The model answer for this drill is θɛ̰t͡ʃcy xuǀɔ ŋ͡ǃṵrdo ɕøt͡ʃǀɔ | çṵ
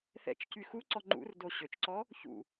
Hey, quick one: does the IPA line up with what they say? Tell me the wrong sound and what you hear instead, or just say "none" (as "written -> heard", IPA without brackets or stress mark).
none